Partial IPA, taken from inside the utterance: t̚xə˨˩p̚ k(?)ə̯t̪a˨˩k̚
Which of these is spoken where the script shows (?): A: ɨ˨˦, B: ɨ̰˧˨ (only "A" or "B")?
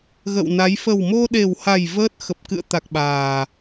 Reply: B